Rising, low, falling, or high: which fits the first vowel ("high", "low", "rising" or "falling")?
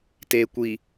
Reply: low